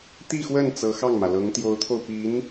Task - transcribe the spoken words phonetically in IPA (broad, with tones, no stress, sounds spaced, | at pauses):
t̪ i˥˧ x w ə˥˩ n t͡s ɤ˧˥ x ɑ˥˩ ŋ m ä˩ l ɤ˧˥ ŋ t̪ j o˧˥ ʊ̯ t̪ʰ o˧ ʊ̯ p i˧˥ n